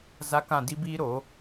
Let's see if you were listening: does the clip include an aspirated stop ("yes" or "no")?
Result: no